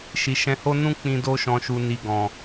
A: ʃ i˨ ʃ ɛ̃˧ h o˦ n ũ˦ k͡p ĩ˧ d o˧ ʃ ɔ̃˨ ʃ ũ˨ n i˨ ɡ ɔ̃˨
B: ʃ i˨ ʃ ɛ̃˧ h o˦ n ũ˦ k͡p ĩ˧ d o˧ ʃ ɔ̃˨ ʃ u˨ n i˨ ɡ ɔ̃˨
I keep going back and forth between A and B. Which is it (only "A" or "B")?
B